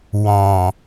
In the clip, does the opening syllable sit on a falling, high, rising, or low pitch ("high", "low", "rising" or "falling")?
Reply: low